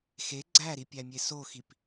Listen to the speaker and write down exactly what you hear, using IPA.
x e ɡ͡ǀ æ ɾ i pʲ æ mʲ e s o x i p

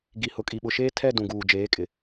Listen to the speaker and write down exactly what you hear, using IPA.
ɡ i˨ h ʊ˨ kʼ i˨ ɓ ʊ˨ ʃ eː˦ tʰ ɛ˦˨ d ũ˨ ɡ uː˨ d͡ʒ eː˨˦ kʼ ɪ˨

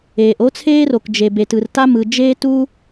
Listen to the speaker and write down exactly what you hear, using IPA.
eː˩ ʔ o˥ t͡sʰ eː˥ r o˩ k d͡ʒ e˩ b e˩ t ɯ˩ r t a˥ m ɯ˩ d͡ʒ eː˥ t u˥

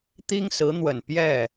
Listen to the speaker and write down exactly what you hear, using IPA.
t̪ i˥ ŋ s ɹ̩˧˥ n̪ w ə˨˩ n p j ɛ˥˩

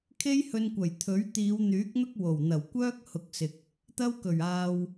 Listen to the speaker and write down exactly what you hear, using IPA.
kʰ e˥ j h ɵ˧ n kʷ ɐ˨˩ j t̪ʰ ɵ˨˥ ɥ t̪ iː˨˧ w n̪ yː˨˥ k̚ n̪ ʊ˥ k̚ w o˨˩ w n̪ ɐ˨˩ w kʷ œː˥ k̚ h ʊ˨˥ k̚ s ɪ˨ k̚ | t̪ ɐ˥ w k ɵ˨˩ ɥ aː˧ w

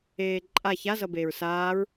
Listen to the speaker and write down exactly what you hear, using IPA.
eː ǃʼ a ç a z ʌ b eː ɹ s aː ɹ

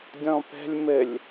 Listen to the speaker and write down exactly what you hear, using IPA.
dʲ ɔ̃ p ɛ̤ lʲ m ɘ lʲ

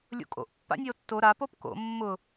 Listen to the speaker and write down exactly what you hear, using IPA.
lʲ o̰ kʼ o̰ ʔ pː a̰ nʲ e o̯ tː o ɾ a p o p k o̰ mː ʊ

